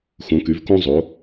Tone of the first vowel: rising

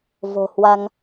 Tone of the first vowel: low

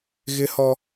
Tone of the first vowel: high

